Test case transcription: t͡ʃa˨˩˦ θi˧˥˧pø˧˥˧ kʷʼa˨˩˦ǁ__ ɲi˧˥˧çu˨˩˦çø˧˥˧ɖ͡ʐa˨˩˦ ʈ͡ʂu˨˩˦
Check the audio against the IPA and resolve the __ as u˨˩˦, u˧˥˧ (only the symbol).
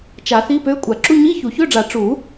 u˧˥˧